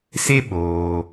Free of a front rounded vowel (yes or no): yes